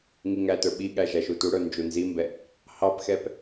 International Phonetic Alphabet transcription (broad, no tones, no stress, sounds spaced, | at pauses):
ŋ i ŋ æ t ə˞ ɓ i ɠ æ ʒ æ ʃ u t u ɽ ə˞ n d͡ʒ u n z i m b ɛ | h ɑ p x ɛ p